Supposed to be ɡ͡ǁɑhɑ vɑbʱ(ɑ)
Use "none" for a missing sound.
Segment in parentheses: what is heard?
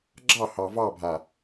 a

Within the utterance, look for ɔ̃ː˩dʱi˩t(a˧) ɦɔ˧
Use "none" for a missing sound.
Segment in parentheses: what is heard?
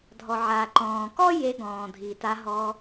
a˧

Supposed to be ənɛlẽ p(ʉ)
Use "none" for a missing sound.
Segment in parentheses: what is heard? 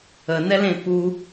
u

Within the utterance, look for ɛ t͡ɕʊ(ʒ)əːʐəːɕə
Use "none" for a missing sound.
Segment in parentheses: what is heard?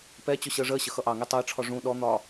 ɕ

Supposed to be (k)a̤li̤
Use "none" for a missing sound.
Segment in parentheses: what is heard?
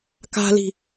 k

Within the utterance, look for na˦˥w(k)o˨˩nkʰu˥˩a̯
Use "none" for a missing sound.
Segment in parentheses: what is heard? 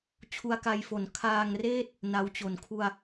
t͡ɕ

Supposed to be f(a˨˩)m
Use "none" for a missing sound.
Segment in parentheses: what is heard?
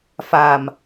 a˨˩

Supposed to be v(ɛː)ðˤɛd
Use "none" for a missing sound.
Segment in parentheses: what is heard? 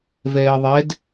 ɛː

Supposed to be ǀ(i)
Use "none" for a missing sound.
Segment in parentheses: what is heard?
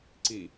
i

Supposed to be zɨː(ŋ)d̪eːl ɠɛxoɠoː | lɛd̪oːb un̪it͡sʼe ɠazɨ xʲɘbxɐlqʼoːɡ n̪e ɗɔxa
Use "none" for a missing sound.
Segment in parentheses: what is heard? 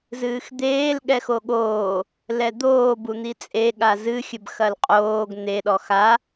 x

